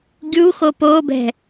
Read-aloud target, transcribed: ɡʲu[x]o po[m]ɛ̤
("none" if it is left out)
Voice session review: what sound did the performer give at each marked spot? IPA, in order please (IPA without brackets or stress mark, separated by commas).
x, b